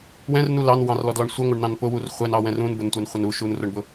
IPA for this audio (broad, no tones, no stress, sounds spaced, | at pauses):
w ɛ̃ r n u l ɑ n w ɑ̃ r l ɔ d l ɔ ɳ sʷ ɪ ŋʷ ʌ ɳ n ɑ̃ n p ʊ w u r χʷ ɛ n ɑ w ɛ̃ r ũ n b ʊ n tʷ ɛ n χʷ ɪ n u ʃ u n r ʊ ɳ b ʊ